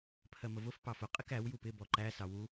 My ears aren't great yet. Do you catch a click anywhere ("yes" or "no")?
yes